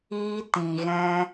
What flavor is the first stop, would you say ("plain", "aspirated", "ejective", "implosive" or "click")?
plain